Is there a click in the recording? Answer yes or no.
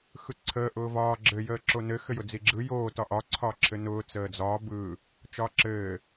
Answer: yes